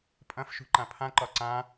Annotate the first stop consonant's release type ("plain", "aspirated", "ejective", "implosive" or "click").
ejective